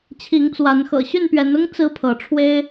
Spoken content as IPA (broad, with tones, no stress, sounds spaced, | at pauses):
t͡ɕʰ i˨˦ ŋ t͡s w a˨˦ n x ɤ̰˨˩ ɕ y˥˨ n p ɥ ɛ˨˦ n ʊ˦ ŋ t͡s ɹ̩˦ pʰ ɤ˨˦ ʈ͡ʂʰ w e˦ ɪ̯